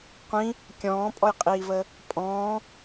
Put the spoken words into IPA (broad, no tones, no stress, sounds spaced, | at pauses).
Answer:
qʷ ĩ | kʲ ɔ̃ː pʼ ɔ j qʼ iː v əː | pʼ ɔ̃ː